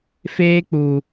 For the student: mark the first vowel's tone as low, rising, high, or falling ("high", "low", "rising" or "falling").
high